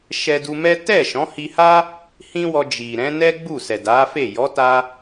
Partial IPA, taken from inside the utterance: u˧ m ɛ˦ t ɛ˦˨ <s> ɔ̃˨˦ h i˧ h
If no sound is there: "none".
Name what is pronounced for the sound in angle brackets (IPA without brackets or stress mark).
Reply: ʃ